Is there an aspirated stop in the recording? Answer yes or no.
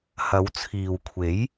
yes